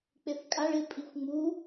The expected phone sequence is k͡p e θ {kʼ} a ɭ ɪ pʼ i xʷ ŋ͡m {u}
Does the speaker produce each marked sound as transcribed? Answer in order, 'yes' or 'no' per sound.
yes, yes

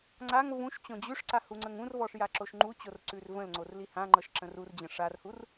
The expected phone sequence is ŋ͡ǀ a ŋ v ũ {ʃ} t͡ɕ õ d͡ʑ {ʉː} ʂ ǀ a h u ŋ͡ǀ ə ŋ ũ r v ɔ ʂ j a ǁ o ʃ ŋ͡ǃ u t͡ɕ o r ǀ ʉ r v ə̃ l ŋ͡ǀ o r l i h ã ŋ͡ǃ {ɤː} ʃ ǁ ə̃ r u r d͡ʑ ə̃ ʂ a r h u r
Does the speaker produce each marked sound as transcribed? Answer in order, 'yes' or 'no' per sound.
yes, no, no

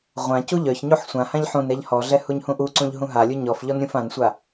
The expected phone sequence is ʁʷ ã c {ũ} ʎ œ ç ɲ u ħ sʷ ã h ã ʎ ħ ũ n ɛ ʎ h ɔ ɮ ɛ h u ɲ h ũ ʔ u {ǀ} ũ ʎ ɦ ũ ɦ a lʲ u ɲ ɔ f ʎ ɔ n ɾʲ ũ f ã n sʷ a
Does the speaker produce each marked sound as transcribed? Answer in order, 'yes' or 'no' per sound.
no, yes

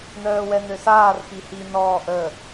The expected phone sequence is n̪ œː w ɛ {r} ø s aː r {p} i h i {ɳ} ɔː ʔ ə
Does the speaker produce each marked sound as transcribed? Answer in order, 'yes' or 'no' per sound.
no, yes, no

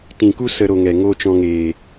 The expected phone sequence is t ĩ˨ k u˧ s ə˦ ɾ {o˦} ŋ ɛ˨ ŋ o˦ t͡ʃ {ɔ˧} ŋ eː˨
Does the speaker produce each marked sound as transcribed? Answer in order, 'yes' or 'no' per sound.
no, no

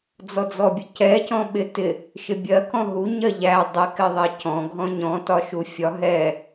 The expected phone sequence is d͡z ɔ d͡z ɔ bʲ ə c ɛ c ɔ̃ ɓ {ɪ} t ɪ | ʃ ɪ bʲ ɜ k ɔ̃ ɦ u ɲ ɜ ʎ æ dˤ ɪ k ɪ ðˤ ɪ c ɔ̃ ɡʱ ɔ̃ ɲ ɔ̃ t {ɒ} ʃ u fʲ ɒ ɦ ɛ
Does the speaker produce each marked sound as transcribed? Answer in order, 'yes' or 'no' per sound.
yes, yes

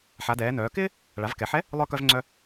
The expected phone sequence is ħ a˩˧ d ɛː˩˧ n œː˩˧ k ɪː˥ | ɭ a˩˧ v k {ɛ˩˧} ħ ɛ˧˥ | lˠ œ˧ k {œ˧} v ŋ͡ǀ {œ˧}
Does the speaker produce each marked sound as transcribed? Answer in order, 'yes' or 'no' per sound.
yes, yes, yes

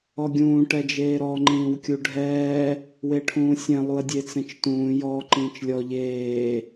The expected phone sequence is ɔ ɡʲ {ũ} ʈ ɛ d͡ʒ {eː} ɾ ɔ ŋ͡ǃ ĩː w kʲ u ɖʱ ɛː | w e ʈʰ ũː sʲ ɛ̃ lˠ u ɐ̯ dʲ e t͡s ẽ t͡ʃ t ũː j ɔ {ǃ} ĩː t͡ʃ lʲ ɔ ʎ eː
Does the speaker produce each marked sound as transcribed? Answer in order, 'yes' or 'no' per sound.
no, yes, yes

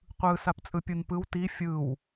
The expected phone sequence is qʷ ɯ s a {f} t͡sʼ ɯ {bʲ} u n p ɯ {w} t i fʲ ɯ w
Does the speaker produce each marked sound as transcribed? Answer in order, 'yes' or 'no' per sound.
no, no, yes

